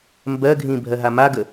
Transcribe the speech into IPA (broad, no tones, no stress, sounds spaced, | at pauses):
m b ɜ ɡʱ ĩ bʱ ɜ ɦ a m a ɡ ə